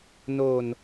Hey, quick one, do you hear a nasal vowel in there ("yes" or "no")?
no